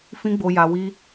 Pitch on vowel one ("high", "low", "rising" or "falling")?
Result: high